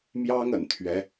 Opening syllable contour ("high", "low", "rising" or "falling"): high